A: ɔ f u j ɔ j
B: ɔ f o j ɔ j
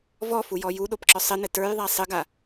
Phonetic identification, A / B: A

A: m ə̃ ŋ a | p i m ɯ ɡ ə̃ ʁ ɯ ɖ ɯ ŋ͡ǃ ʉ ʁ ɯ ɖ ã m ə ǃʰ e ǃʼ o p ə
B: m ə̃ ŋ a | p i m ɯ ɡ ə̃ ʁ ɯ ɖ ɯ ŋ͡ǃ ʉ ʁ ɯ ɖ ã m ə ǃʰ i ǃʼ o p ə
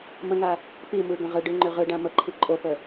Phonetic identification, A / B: B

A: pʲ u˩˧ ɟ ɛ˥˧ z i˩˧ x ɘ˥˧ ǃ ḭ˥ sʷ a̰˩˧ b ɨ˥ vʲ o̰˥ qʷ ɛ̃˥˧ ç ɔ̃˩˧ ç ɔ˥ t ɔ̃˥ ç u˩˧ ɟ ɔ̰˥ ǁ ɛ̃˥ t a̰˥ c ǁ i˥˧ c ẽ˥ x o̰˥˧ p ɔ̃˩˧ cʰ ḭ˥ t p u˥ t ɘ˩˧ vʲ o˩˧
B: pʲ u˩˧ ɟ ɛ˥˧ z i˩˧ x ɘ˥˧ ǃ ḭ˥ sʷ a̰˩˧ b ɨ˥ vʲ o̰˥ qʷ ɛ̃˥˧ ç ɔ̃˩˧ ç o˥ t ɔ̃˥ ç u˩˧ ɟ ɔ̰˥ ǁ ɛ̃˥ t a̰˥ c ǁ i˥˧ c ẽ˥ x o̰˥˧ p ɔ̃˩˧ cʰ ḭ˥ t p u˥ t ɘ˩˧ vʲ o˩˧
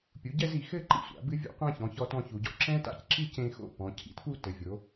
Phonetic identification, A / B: A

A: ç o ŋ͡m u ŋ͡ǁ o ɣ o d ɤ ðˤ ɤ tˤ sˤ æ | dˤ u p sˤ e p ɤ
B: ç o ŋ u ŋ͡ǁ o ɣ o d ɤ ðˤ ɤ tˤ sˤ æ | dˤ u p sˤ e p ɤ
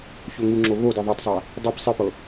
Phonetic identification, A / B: B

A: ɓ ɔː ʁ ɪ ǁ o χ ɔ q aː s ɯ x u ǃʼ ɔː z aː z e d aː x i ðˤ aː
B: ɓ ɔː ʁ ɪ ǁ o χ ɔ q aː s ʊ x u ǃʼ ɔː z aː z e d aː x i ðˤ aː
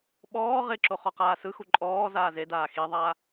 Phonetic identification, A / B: A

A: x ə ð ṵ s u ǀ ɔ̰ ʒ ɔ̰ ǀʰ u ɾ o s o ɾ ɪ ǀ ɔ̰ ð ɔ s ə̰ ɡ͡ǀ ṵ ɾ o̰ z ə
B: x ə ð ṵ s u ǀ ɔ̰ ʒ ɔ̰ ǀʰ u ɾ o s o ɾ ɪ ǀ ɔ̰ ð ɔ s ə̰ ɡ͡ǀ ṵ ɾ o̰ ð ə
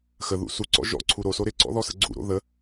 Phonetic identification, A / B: B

